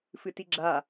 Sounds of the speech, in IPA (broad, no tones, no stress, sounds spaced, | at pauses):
f ɨ t i ɡ͡ǁ a